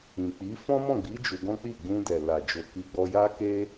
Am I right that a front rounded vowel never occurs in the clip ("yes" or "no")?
yes